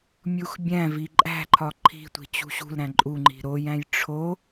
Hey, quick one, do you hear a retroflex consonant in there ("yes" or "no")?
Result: yes